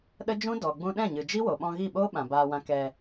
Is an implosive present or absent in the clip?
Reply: present